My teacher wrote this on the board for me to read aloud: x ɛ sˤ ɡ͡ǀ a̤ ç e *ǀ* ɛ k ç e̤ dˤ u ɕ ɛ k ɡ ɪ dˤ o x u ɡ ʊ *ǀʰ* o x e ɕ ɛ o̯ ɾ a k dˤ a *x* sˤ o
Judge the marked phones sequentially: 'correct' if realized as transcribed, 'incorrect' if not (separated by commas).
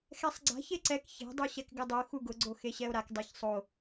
correct, incorrect, incorrect